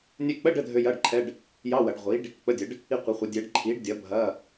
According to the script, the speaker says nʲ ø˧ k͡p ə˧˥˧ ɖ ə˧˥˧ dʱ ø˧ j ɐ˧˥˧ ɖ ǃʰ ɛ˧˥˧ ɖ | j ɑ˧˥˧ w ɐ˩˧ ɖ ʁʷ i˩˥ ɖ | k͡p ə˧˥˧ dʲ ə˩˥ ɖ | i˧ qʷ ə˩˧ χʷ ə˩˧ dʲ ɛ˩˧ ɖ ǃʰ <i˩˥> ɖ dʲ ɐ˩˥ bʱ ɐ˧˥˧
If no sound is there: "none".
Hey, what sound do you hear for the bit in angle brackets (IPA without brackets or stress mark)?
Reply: i˩˥